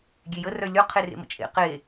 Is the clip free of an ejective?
no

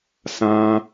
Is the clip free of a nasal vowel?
no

